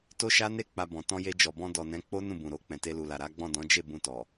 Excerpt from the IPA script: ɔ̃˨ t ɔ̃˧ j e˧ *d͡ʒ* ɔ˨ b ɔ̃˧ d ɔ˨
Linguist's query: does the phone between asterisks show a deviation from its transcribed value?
no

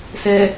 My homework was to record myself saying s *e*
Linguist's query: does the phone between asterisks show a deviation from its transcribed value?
yes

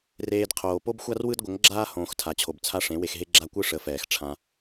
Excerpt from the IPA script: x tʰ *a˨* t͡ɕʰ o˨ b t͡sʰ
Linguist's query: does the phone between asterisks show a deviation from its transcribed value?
no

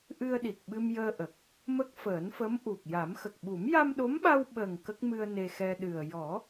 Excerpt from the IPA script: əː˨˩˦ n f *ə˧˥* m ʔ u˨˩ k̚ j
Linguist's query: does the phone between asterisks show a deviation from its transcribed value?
no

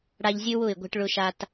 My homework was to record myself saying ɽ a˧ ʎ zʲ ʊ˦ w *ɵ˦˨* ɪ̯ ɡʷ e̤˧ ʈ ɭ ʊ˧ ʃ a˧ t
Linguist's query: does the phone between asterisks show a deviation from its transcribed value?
yes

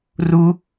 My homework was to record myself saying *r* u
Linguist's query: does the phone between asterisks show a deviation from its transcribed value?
no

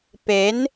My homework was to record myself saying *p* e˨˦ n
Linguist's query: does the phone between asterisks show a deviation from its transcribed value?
no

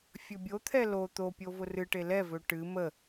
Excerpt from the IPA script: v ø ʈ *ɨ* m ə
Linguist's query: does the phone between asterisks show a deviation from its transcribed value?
no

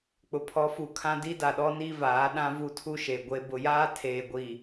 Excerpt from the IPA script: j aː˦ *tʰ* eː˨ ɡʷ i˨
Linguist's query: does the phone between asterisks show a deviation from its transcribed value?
no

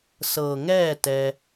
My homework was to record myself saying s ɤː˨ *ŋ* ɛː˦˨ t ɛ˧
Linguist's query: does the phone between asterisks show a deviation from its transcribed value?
no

